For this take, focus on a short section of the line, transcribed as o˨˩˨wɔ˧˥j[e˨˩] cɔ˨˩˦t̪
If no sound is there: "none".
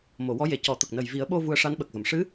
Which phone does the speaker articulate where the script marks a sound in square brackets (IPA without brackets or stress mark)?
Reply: e˨˩